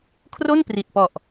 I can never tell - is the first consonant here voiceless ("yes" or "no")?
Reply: yes